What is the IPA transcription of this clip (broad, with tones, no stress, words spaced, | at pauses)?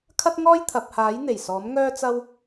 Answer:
kʰɐ˥t̚ŋɔː˥jt̪ʰɐ˨p̚haː˨˥j n̪e˨˩jsɔː˨˥m ŋœː˥t͡sɐ˥w